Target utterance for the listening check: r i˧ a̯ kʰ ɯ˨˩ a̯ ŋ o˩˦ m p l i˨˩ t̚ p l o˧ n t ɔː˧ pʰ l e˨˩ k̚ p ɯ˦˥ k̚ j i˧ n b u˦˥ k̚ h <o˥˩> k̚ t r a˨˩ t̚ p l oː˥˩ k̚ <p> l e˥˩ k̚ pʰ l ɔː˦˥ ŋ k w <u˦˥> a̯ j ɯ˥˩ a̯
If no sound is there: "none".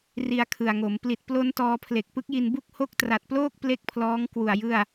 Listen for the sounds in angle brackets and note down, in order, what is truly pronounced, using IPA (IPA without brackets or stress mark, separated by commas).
o˦˥, p, u˨˩